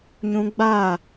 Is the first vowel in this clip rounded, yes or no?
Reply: yes